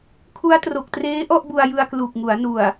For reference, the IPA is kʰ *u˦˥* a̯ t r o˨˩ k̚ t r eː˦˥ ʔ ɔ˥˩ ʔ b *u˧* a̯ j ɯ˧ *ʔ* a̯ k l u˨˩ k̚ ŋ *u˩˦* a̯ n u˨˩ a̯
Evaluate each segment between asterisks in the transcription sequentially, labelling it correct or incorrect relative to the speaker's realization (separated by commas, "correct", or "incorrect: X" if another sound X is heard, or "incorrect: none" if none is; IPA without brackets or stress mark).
correct, correct, incorrect: none, correct